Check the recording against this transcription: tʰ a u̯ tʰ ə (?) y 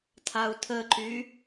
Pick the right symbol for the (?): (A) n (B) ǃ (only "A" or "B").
B